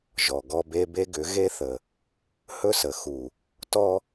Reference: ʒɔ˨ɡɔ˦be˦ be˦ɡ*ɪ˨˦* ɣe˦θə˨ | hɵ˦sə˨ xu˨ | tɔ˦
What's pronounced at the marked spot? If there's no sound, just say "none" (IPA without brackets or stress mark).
ʏ˨˦